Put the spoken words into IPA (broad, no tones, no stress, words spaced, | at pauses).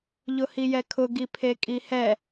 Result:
ʎʊhijɛkʰʊ ɡipʰekʼihɛ